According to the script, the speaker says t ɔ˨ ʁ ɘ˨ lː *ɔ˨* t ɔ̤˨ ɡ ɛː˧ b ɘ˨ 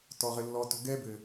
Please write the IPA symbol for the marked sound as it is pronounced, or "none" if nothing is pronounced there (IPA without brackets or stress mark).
ɔ˨